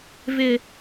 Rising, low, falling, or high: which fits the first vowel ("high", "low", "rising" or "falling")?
high